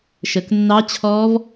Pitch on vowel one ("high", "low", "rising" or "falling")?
low